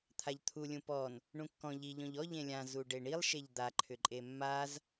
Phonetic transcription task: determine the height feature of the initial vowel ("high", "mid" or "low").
low